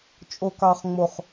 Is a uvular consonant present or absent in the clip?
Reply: present